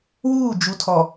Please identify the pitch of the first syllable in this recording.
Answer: falling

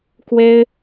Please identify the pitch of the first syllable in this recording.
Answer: high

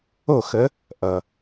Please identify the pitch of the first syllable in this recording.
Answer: falling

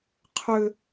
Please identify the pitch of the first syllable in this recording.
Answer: high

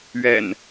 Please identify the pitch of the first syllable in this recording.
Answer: low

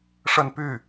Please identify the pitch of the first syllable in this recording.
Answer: falling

